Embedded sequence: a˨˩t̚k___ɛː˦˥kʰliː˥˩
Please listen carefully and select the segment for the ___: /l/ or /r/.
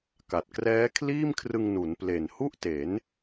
r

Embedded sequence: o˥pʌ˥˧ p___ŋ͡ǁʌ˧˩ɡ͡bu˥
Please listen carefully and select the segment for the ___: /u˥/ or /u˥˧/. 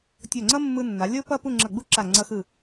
u˥˧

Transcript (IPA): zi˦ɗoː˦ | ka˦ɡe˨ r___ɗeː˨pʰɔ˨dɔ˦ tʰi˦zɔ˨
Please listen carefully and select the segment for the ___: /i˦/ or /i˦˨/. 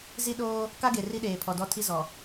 i˦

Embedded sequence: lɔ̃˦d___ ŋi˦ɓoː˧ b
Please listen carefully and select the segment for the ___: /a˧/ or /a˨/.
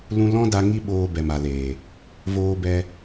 a˧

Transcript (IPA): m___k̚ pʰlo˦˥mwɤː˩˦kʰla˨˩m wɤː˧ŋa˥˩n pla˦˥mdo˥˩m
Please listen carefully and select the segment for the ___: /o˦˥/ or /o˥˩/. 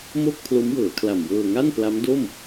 o˥˩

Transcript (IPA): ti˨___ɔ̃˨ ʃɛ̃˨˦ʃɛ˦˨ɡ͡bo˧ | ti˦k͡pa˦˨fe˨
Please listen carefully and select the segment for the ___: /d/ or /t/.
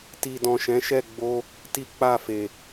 d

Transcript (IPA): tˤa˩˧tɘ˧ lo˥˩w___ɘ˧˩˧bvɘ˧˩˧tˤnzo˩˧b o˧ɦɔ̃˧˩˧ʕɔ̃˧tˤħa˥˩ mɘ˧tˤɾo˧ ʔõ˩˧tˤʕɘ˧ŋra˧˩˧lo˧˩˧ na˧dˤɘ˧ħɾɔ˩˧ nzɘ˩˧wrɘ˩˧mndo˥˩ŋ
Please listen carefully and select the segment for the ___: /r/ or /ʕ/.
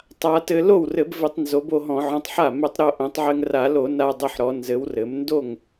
r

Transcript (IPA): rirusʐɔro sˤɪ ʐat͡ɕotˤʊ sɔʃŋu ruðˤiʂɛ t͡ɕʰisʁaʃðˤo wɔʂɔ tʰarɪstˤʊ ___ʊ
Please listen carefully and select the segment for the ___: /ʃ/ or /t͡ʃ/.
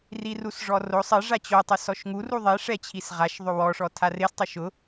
ʃ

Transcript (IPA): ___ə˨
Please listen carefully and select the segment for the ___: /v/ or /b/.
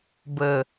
b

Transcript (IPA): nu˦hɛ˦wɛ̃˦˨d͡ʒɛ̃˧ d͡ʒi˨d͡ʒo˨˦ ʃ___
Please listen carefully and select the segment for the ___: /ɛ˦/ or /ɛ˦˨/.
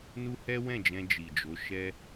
ɛ˦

